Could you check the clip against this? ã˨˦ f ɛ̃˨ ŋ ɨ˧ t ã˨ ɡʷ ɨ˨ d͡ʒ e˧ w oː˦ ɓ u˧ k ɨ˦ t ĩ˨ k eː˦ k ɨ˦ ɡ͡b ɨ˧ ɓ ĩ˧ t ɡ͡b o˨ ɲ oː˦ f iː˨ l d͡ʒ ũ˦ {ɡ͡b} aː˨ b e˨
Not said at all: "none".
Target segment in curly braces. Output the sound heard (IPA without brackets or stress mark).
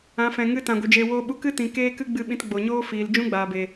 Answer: ɡ͡b